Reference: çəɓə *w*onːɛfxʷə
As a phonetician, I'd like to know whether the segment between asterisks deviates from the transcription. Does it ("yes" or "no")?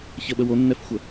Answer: no